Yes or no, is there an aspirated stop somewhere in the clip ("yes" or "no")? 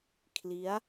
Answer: yes